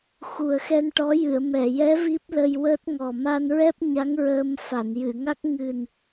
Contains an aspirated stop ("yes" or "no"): no